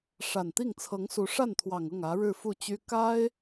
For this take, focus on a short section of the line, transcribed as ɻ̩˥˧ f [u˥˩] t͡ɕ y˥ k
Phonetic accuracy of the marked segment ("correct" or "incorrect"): correct